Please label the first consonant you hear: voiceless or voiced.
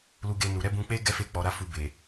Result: voiced